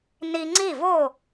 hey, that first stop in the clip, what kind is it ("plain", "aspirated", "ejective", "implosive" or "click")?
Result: click